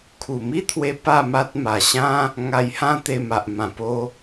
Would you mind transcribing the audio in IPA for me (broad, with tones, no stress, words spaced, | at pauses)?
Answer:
kʰu˨˩mi˦t̪ʰwe˧ pa˥˧ma˦t̚ ma˨˩ɕã˦ | ŋa˧jhã˦t̪e˧ma˨ʔ mã˨˩po˧